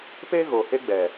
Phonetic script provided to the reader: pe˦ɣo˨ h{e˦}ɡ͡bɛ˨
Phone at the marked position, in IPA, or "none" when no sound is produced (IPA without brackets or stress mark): e˦